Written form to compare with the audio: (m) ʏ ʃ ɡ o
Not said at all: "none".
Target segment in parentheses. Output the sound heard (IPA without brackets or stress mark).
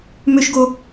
m